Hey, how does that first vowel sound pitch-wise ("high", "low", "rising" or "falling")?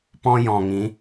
high